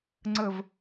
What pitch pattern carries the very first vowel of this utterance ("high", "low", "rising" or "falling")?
low